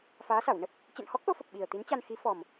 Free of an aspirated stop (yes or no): yes